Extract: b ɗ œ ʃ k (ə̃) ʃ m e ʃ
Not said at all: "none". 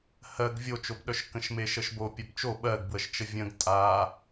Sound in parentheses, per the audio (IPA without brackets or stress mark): ə̃